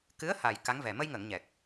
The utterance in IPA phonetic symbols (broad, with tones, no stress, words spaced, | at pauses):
kɨ˧˥ə̯ha˨˩j ka˧˥ŋvɛ˨˩ mə˧jŋəː˨˩˨ŋ ɲɛ˨˩k̚